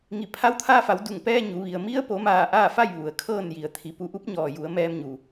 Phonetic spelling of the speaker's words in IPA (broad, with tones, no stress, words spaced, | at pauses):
ŋi˧˩ pʰa˧˥wt̪ʰaː˧fa˩˧w du˧˩ŋpɛː˧ ɲu˩˧ ʋi˩ə̯ mi˧˥ə̯po˩˧maː˧˩ ʔaː˥˨fa˥˨j ʋu˩˧ə̯kʰɤː˥˨n ji˩ə̯t̪ʰi˩˧ pu˧˩ʔu˧˥p̚ ɲɔː˩ju˩˧ə̯ mɛː˧mɲu˩